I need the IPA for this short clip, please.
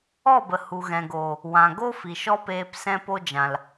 ɔ˦˨bə˨ hu˨ɣɛ̃˨ ɡoː˨ | wã˨ ɡo˦ fi˨ʃɔ˦peː˧p sɛ̃˧po˧d͡ʒã˨l

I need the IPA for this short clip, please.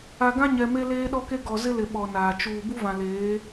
a˨ɡã˦ɲɛ˨ me˦leː˦ɗɔ˦ke˦ ɡɔ˨ zɪ˦lɪ˨ ɓɔ˨naː˨ t͡ʃuː˨ bu˦vã˨leː˨˦

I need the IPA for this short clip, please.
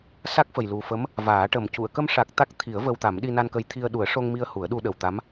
sa˦˥k̚fə˨˩jlu˨˩fə˧˥m | vaː˨˩˦ʈə˨˩m cu˨˩˨ə̯kə˧mʂa˨˩k̚ t̪a˦˥k̚t̪ʰi˨˩˦ə̯ və˧wt̪a˨˩˦m ɗi˧na˧nkə˧˥jt̪ʰi˧ə̯ ɗu˨˩˦ə̯ʂo˧ŋmi˧ə̯ hu˨˩˦ə̯ɗu˧ɗə˨˩wt̪a˧˥m

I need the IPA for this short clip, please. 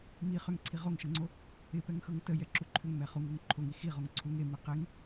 mi χʏŋǀʰi ʁoŋʃʌŋ͡ǀo | ɪpɛŋxɤŋ təjɛǁu ǃʰʏŋmɛ χuŋoŋ ǃʰoŋi xiʁoŋ ǀʰuŋ emi qeŋ

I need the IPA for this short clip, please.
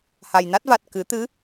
ha˨˩jna˦˥t̚va˨˩t̚ kɨ˨˩˦t̪ɨ˧˥

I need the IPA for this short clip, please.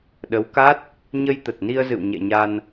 ɗə˨˦wka˦˥t̚ | ɲə˧jt̪ə˨˩t̚ni˧ə̯zɨ̰˧˨w ɲɛ̰˧˨ɲa˧n

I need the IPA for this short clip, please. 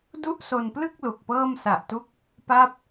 du˥˩ʔso˧nplɯ˥˩k̚ lu˨˩k̚pɤː˥˩m sa˨˩ʔtu˦˥k̚ | pa˥˩p̚

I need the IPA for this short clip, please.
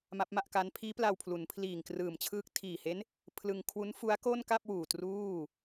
ma˦˥p̚ma˥˩ʔka˦˥n pʰiː˦˥pla˧w pʰlu˩˦npʰliː˨˩ŋ krɯː˨˩mt͡ɕʰɯː˦˥k̚ tʰiː˨˩he˦˥n | pʰlɯ˧ŋkʰwu˦˥n fu˦˥a̯ko˥˩nka˥˩p̚wuː˨˩ truː˥˩

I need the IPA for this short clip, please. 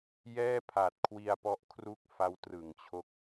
jɛː˥˩pʰa˨˩t̚kʰwi˧a̯pɔ˦˥ʔ kʰru˥˩k̚fa˦˥w trɯ˩˦ŋt͡ɕʰo˦˥k̚

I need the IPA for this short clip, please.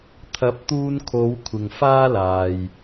t̪ʰɐ˨˥p̚t̪uː˧nkʰo˨˧w kʷʰɪ˨ŋfaː˥laː˨j

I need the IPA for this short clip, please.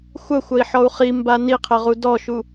xʷɐxʷɐi̯ħɔu̯ χimba niqʰɘʁu dɔʃu

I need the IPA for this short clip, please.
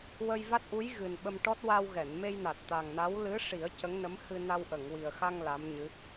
wə˧jva˦˥t̚ʔu˧˥jɣɨ˨˩n ɓə˧mʈɔ˦˥t̚ wa˧wɣɛ˨˩˨nme˧jna˨˩t̚ t̪a˨˩ŋna˧˥w lɨ˧˥ʂi˨˩˦ə̯ cə˧˥ŋnə˧˥m hɨ˧na˧w ʔə˨˩˨ŋwi˨˩ə̯xa˧ŋ la˧˥mɲɨ˧˥

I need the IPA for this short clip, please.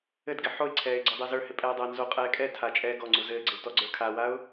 ɘdɡɪ ħoɪ̯ǀʰɛːɪ̯ ɡ͡ǀɔdˤɛzə˞hɪ pʼɛːdˤɘːnzoqʼɛː kʼɛ tʰat͡ʃʼɛː ɡɔŋ͡ǀu zɘːɡ͡ǀɪw tɔɡ͡ǀə˞kʰawaʊ̯

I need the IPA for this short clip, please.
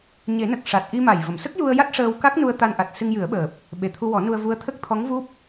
ɲe˨˩˦nə˨˩k̚ ʂa˨˩t̚ʔi˧ma˨˩jvə˨˩˨m sə˦˥k̚ju˧ə̯ ja˦˥t̚ʂəː˧wka˦˥k̚nu˧ə̯ t̪a˧nʔa˨˩t̚ sɨ˧ŋjɨ˨˩˦ə̯ɓəː˨˩p̚ | ɓe˨˩t̪ʰu˧wɔ˨˩˦ nu˧ə̯vu˧˥ə̯t̪ʰə˦˥k̚ t̪ʰɔ˧˥ŋvu˦˥p̚

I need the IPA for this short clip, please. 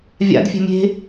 vʲa̰dfʲe̤ mʲe̤

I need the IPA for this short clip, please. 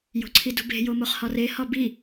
jo̤ǀʰidṳbe̤ jomoχhɒre hɒbi

